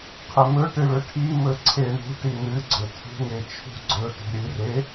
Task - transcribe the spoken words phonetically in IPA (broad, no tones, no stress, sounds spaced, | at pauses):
qʰ e m ɵ ʈ ɨ ɭ ɵ ʈʰ i m ɵ ǀʰ e ɳ ṳ ʈ i n ɨ ɡ͡ǀ ɵ tʰ ṳ ŋ e t͡ʃʰ ṳ ɡ͡ǀ ɵ t ṳ ɾʲ ɨ r e